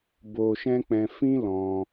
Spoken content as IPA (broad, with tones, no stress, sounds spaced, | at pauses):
b o˧ ʃ ɛ̃˦ k͡p ɛ̃˧ f ĩ˦ l ɔ̃˧